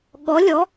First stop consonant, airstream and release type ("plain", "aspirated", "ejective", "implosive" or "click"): implosive